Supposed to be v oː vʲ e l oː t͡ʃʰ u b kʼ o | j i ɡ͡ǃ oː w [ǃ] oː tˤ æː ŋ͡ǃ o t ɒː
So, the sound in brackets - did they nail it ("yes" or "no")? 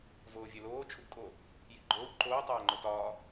yes